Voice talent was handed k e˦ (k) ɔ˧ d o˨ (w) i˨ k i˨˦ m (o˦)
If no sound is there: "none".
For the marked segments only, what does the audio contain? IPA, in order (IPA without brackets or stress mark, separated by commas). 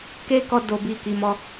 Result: k, b, ɔ˦